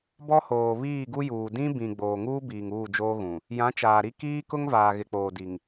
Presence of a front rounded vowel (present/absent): absent